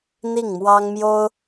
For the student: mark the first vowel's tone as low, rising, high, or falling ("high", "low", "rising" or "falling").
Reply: falling